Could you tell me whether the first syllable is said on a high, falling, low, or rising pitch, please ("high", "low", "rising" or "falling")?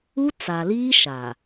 high